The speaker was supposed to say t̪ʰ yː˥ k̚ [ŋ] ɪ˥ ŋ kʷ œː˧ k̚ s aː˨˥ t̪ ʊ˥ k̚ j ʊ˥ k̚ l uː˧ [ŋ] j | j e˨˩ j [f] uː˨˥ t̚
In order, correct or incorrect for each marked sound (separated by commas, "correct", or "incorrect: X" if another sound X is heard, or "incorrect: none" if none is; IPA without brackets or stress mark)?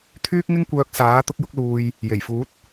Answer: correct, incorrect: none, correct